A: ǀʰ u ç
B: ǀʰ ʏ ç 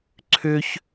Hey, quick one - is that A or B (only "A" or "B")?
B